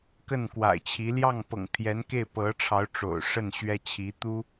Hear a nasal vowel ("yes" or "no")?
no